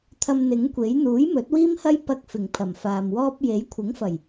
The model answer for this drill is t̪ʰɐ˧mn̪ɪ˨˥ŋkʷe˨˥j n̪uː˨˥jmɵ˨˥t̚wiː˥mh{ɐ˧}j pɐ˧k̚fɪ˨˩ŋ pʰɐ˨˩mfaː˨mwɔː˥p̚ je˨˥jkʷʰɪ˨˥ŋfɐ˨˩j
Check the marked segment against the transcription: incorrect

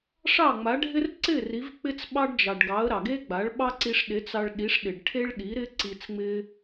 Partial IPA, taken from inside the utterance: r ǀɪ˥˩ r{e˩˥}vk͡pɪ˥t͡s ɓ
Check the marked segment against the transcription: incorrect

